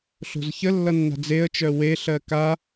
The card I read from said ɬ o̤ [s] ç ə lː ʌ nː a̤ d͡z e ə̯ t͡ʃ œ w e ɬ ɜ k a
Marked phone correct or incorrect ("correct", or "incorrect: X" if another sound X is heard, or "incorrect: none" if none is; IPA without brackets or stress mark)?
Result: incorrect: z